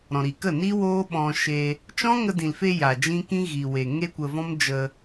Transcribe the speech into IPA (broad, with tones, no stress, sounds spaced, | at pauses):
ɾ ɔ̃˨ ɾ i˨ k ə˦˨ n iː˦ w oː˦ ɓ ɔ̃˧ ʃ e˧ | t͡ʃ ɔ̃˦ ŋ ə˧ d ĩ˨ l f e˧ j a˨ d͡ʒ ĩ˦ k ĩ˦ ɣ i˨ w e˨ ŋ e˦ kʷ ə˧ v ɔ̃˦ m d͡ʒ ə˧